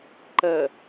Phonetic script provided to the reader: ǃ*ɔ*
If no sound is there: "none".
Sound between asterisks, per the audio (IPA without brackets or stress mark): ə